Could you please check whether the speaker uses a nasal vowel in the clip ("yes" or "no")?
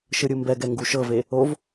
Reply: no